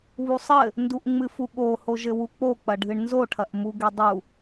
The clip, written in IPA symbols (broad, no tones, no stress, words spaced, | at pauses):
βusˤɘ | nduʔŋ͡mɨfuɠo hoʒɘwuk͡po k͡pɐɖʱɨɳnzo ʈʰɐʔmuɡedˤu